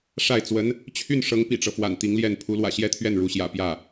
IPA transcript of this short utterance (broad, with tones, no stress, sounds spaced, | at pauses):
ʂ a˥˩ ɪ̯ t͡s w ə˧˥ n | t͡ɕʰ y˥˩ n ʂ ɤ˧˥ ŋ p ḭ˨˩ ʈ͡ʂ ɤ˦ f w a̰˨˩ n t̪ i˧˥ ŋ l j ɛ˥˩ n pʰ u˧˥ l w ä̰˨˩ ɕ j ɛ˥˧ t̪ʰ ɥ ɛ˥˩ n ɻ u˧˥ ɕ j ä̰˨˩ p j ä˥˩